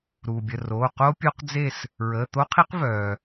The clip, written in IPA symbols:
ɾ uː˩ bʲ ə˩˧˩ r oː˩˧˩ q o˦˥ pʲ o˦˥ q d͡z e˥˨ s | ɹ əː˩˧˩ t̪ o˦˥ qʰ i˦˥ q v œː˩

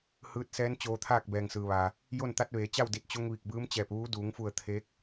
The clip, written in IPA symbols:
h ɯː˧˥ t̚ s ɛː˧˥ n t͡ɕ oː˧ t̪ʰ aː˥˨ k̚ b ɛː˩ ŋ s ɯː˩ ʋ aː˩ | j o˥˨ n t̪ a˧˥ t̚ ʋ eː˩˧ t͡ɕ a˥˨ w d i˧˩ t̚ t͡ɕ o˧ ŋ ʋ i˧˩ k̚ b ɯː˧˥ m t͡ɕ ɛː˧˩ p̚ ʋ uː˧˥ d uː˩˧ ŋ f u˧˩ ə̯ t̪ʰ eː˧˥ k̚

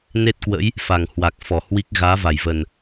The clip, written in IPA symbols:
n e˦˥ t̚ k w ə̰˧˥ j | f a˨˩ ŋ h w a˨˩ k̚ f ɔ˧˩ h w i˦˥ k̚ ɣ aː˨˦ v a˧˩ j v ə˨˩ n

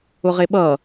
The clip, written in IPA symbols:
ʊ ʁ e ɓ ʌ

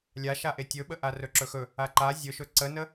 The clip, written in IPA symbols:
lʲ a ʃ a ʔ e tʲ ɵ ɓ ə ʔ a r ɵ ǁ ɵ x ɵ | a ǃ a zʲ ɵ ʃ ɵ ǀ ə n ə

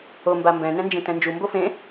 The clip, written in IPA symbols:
o m b a m b ɛ̃ n ɛ̃ n d͡ʒ ẽ t ɛ̃ n d͡ʒ u m b o f ẽ

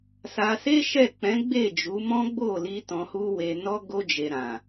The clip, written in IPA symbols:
s a˧ s e˦ ʃ ɛ˦˨ k͡p ɛ̃˨˦ ɡ͡b e˦˨ d͡ʒ u˨˦ m ɔ̃˦ ɡ͡b o˦˨ l i˧ t ɔ̃˧ h u˦ w e˧ n ɔ˧ ɡ o˧ d͡ʒ e˨ ɾ ã˨

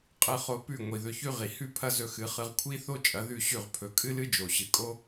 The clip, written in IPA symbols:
qʼ ɨ˧ χ o˧ p ʉ˥˩ ŋʷ i˩ ð ɵ˧ ç ʉ˥ ʁ i˩ h ʉ˥ pʰ ɐ˥ z ɵ˧ x ɨ˩˥ χ ɨ˧ ʁ kʷʰ i˥ θ o˥ t͡ʃʼ ɐ˩˥ ð ʉ˥˩ ɕ ʉ˥˩ ʁ pʰ ɵ˩˥ kʼ ɨ˥ l ɨ˥ d͡ʒ o˩ ɕ ɨ˩ kʼ o˥

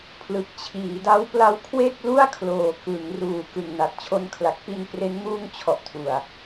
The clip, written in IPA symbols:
pʰ l ɯ˨˩ k̚ t͡ɕʰ iː˩˦ d a˦˥ w p l a˦˥ w kʰ w e˥˩ k̚ l u˥˩ a̯ kʰ l oː˨˩ k ɯ˩˦ ŋ r uː˩˦ k ɯ˨˩ ŋ n a˨˩ t̚ t͡ɕʰ o˧ n kʰ l a˨˩ k̚ p i˧ n p r e˦˥ n m uː˧ ŋ t͡ɕʰ ɔ˨˩ ʔ tʰ u˨˩ a̯

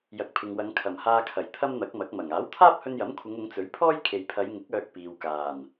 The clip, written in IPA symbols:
j ɐ˨ k̚ pʰ ɪ˨ ŋ w ɐ˨˧ ŋ kʰ ɐ˨˩ m h aː˧ kʰ ɐ˨˩ j t̪ʰ ɐ˥ m n̪ ɐ˨˥ k̚ m ɐ˨˥ k̚ m ɐ˨˩ ŋ aː˨˥ w t̪ʰ aː˥ p̚ h ɵ˧ n j ɐ˨˥ m kʷʰ ɪ˨˧ ŋ ʊ˨˧ ŋ t͡s ɵ˨˥ ɥ pʰ ɔː˥ j kʰ e˨ j pʰ ɐ˨˧ j ŋ ɪ˨˥ k̚ œː˧ k̚ p iː˨ w k aː˨˩ n

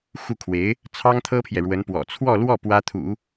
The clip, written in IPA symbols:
x u˥˩ kʰ w e˧˥ ɪ̯ | t͡sʰ ɑ˥ ŋ t̪ʰ ɤ˥ pʰ j ɛ˨ ɻ w ə˧˥ n p w ɔ̰˨˩ t͡sʰ w ɔ˥˧ l w ɔ˥˩ p w ä˥ t̪ʰ ṵ˨˩˦

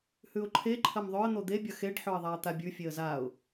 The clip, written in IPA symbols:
h ʉ ʊ̯ ǃʰ e ǃʰ ɐ m ðˤ ɵ ə̯ n̪ o d̪ e bʲ ɐ x e ɖ ħ ɵ ə̯ ðˤ a ə̯ t̪ a bʲ ʉ fʲ e ə̯ z a ʊ̯

